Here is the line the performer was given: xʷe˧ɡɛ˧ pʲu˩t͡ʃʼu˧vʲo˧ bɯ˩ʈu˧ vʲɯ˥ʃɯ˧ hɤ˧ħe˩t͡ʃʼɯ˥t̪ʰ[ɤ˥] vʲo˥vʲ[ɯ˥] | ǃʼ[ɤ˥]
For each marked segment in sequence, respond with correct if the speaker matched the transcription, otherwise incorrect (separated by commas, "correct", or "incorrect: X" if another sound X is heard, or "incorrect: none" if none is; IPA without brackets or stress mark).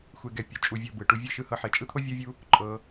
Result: incorrect: o˥, incorrect: u˥, incorrect: ɤ˧